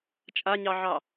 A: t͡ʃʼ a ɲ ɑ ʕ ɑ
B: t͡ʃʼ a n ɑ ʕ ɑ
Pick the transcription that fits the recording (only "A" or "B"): A